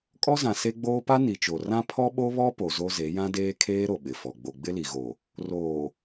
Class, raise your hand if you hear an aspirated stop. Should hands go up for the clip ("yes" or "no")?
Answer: yes